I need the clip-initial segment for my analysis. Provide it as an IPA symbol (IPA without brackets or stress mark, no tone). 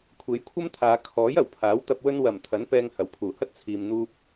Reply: kʷʰ